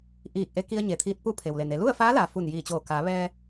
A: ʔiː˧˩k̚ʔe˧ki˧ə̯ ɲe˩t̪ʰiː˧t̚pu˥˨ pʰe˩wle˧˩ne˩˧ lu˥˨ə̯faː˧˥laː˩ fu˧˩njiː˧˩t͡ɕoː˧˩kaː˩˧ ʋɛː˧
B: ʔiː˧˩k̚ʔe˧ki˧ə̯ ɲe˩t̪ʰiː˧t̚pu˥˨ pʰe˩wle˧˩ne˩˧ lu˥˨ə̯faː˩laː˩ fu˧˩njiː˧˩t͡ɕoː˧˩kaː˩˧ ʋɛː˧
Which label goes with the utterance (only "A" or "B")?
A